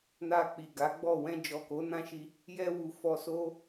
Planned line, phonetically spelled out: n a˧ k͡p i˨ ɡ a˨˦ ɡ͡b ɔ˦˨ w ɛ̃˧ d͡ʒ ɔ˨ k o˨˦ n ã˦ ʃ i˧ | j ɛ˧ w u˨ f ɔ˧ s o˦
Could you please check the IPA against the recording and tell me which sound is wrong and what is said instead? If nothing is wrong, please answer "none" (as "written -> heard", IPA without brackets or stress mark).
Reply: none